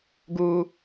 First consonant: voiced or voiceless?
voiced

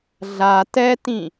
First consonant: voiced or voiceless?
voiced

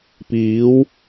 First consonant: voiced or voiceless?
voiceless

